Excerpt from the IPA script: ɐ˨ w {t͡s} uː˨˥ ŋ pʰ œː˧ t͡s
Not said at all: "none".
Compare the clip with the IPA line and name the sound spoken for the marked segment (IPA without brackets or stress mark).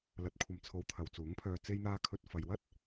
t͡s